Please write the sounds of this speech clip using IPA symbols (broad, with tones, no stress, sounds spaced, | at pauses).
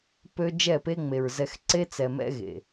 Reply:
p ø˦ d͡ʒ ɛ˦˨ p e˦ ŋ͡m e˨ ɹ z ɛ˨ x ǀ e˦ t͡s ɛ˨ m ɛ̰˦ ɣ ḛ˨